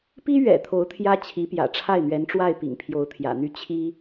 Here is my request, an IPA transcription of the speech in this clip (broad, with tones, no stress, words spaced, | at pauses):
pi˥ɥɛ̰˨˩ t̪ʰo˧˥ʊ̯t̪ʰjä˥ t͡ɕʰi˧˥pjä̰˨˩ʈ͡ʂʰa˥˩ɪ̯n̪ɥɛ˧˥n ʈ͡ʂwa˥˩ɪ̯pḭ˨˩ŋ pʰjo˧˥ʊ̯t̪ʰjä̰˨˩n̪y˥˩ t͡ɕʰi˥